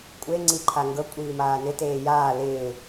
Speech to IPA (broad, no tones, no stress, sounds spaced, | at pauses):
kʷʼ e ŋ͡ǀ i ǃʰ a ŋ ɡ ɤ kʷʼ iː m aː n ɪ t eː j aː l ɪː